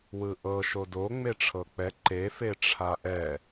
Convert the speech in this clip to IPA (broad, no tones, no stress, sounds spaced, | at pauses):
w ɯ ʔ ɤ ʃ o d o ŋ͡m e ʈ͡ʂʰ ɤ k͡p ɛ ǃ e f e ʈ͡ʂʰ a ʔ ɛ